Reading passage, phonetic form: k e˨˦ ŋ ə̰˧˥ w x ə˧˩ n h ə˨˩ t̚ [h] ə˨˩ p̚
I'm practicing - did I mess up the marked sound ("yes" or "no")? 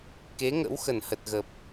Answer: yes